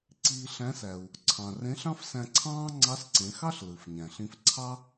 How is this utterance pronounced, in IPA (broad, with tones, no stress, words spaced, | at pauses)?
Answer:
ǀiː˧ɬæ̃˧˥sæ˩u̯ | ǀʰɑ̃˩rẽ˧˥ɬ ɑ̃˥fsæ̃˧ǀʰɑ̃ː˥ ŋ͡ǀɑ˧˥sǀẽ˩˧xɑ˥ɬ lɯ˩fɲæ̃˩ɬĩ˧f ǀʰɑ˥